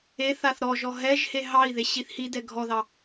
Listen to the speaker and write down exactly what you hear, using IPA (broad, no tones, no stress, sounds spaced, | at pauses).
e θ a θ ɾ ɔ ʒ ɔ ɦ ɛ ʒ h e ɦ ɑ i̯ ð e ɕ i θ h i d ɛ ɡʱ ɔ ð ɑ